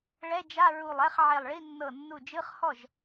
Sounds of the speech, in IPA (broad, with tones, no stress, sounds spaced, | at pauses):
ɭ ɛ˧˥˧ d͡ʒ a˧˥˧ ɹ u˧˩ lˠ ɛ˧˥˧ χ ʕ e˧˩ lˠ ɭ i˧˥˧ nː ɤ˧˩ nː u˧˩ d͡ʒ ɯ˧˥˧ χ h ɔ˥˩ ʒ